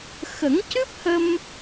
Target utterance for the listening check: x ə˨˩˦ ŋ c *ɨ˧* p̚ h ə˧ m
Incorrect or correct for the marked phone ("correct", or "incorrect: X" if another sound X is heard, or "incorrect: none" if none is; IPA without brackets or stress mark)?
incorrect: ɨ˦˥